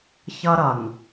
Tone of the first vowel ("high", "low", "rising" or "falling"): high